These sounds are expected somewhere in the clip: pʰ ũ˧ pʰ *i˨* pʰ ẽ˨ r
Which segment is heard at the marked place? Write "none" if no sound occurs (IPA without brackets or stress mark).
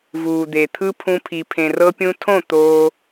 i˨